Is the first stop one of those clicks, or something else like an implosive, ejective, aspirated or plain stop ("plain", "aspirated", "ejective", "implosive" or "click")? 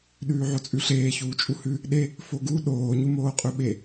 implosive